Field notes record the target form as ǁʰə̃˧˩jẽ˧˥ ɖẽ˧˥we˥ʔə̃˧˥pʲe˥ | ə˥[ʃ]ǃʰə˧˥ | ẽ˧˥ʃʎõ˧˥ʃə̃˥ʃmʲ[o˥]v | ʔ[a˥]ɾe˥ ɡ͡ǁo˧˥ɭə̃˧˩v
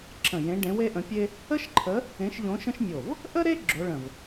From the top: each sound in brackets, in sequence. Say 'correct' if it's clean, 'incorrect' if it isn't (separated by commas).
correct, incorrect, incorrect